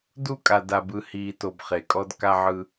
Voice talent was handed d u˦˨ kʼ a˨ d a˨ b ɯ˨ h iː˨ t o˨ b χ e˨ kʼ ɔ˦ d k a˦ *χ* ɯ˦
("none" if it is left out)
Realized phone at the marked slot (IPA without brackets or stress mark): ʕ